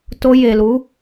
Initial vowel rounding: rounded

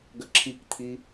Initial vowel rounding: unrounded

